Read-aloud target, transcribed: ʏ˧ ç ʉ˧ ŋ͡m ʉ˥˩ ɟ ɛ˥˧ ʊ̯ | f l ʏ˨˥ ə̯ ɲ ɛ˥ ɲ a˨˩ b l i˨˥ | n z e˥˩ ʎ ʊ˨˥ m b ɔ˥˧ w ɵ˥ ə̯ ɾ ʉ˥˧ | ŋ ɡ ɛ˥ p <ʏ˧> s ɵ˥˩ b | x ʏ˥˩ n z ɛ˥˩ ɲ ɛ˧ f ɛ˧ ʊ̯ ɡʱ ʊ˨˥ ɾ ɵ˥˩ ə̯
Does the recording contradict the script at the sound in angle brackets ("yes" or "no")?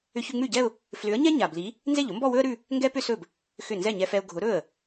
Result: yes